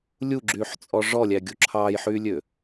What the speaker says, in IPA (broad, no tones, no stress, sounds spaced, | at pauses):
lʲ u ɡ͡ǁ yː ħ t͡sʼ ɔ ʐ ɔ lʲ æ ɡʲ u ǁʰ ɑː j ħ yː lʲ ø